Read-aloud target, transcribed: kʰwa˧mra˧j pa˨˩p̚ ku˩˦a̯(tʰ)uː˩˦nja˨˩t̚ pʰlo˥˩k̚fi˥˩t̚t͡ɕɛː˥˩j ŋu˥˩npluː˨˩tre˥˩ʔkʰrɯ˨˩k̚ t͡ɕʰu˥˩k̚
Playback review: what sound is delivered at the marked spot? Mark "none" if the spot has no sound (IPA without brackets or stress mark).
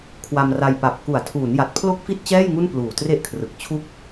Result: tʰ